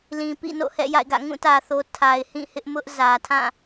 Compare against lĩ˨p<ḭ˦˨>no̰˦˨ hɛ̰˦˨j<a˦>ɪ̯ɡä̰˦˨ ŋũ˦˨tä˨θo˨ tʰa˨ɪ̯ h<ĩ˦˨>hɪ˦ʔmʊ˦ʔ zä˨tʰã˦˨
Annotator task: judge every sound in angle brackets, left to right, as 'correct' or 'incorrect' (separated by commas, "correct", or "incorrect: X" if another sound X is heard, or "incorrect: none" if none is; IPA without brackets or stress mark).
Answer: correct, incorrect: a̰˦˨, correct